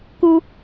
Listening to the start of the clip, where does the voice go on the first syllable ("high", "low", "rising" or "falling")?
high